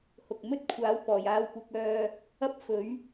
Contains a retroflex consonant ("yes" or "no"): no